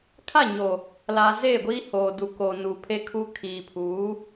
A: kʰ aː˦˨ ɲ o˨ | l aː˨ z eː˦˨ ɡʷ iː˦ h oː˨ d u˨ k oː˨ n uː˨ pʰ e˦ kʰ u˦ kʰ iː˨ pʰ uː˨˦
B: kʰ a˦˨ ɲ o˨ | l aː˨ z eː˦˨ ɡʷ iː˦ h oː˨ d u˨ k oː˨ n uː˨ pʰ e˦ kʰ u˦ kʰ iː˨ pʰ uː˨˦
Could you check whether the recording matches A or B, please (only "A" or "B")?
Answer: B